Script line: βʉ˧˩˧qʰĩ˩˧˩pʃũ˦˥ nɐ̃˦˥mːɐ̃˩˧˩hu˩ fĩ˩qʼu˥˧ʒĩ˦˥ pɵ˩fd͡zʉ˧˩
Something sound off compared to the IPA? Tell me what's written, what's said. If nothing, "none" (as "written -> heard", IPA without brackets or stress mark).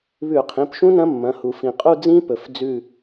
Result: ʒ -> d͡z